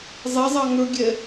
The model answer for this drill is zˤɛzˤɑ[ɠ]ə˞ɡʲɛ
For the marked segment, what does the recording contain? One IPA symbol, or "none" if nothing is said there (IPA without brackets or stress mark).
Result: ŋ